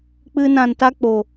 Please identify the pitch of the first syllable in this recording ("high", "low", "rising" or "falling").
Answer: high